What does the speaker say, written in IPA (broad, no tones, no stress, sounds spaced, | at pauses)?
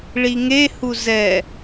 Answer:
ɭ i ŋ e h u z ɛ